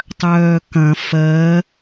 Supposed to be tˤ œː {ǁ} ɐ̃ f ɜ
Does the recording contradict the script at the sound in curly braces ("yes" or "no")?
yes